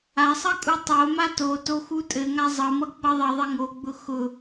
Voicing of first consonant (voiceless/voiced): voiceless